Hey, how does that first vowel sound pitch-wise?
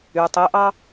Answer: low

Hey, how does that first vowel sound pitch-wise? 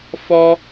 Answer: high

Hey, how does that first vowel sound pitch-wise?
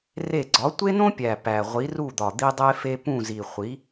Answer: falling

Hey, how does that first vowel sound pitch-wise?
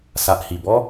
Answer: low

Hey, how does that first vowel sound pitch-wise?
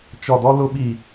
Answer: low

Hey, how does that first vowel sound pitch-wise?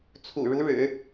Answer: low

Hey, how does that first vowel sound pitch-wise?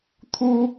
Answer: high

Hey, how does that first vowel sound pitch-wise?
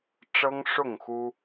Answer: high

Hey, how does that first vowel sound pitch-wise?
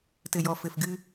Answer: low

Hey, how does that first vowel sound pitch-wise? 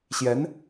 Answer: rising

